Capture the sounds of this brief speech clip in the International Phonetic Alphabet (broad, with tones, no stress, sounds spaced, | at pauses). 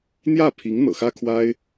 n̪ j ä˥˩ pʰ i˧˥ ŋ n̪ ɤ̰˨˩ x ä˥ kʰ w a˥ ɪ̯